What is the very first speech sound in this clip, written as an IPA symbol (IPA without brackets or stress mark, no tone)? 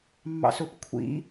mː